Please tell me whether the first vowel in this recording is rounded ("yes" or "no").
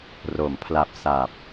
yes